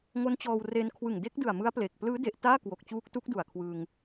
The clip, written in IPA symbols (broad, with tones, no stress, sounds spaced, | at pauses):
ŋ o˦˥ n t͡ɕ ɔː˧ w r e˧ n kʰ w ɯ˨˩ ŋ d e˦˥ k̚ d ɯ˨˩ a̯ m ɯ˦˥ a̯ p l e˨˩ k̚ p l ɯː˦˥ d e˨˩ ʔ t aː˥˩ k w o˨˩ k̚ t͡ɕ uː˦˥ k̚ t u˦˥ k̚ d u˨˩ a̯ kʰ w ɯ˧ ŋ